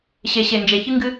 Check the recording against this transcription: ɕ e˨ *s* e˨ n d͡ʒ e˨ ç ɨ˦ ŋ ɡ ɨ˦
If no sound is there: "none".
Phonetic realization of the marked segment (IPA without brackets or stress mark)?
ɕ